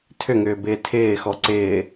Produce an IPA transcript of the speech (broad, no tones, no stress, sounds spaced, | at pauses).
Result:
tʰ ʏ ŋ ʏː b ɪː tʰ ɪː x ɔ ǀ ɪː